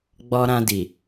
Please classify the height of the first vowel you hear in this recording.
mid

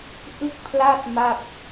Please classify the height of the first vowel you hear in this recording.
high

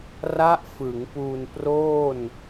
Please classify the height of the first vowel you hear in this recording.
low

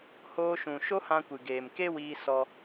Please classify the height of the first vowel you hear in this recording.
mid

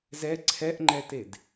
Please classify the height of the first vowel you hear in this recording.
mid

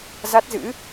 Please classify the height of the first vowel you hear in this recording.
low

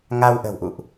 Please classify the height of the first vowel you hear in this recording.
low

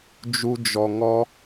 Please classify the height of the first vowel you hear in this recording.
high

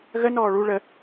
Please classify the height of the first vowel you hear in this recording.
mid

